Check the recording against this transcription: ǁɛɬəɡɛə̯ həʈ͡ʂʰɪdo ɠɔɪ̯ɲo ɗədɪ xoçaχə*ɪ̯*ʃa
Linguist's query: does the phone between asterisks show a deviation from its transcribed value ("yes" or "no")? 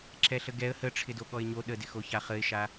no